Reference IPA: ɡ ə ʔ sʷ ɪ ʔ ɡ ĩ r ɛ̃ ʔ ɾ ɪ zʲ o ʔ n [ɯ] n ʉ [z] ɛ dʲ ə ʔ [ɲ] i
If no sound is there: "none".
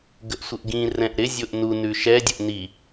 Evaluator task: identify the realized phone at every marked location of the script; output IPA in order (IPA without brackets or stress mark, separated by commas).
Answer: u, ʃ, n